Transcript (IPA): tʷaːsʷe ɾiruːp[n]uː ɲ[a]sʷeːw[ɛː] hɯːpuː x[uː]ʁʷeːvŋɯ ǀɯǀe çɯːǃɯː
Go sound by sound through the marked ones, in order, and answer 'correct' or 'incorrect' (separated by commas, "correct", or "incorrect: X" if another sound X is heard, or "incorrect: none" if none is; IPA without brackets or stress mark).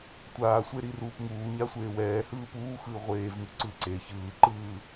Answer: incorrect: ŋ, correct, correct, incorrect: ɯː